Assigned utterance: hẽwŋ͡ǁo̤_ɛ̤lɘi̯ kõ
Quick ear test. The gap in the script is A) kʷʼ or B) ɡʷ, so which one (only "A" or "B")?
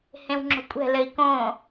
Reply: A